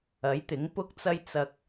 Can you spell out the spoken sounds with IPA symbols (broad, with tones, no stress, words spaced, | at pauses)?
ɐ˨˥jt̪ɪ˨˥ŋ pʊ˨˥k̚t͡sɐ˨j t͡sɐ˨k̚